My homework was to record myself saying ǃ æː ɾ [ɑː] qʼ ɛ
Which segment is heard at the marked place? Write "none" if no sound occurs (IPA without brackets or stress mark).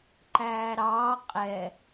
ɑː